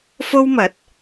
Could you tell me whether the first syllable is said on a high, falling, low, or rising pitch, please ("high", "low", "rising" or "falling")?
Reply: high